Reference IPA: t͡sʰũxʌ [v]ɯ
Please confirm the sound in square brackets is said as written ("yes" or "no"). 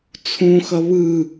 no